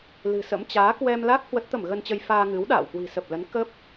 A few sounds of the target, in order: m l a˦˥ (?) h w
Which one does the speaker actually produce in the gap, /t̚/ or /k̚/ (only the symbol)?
k̚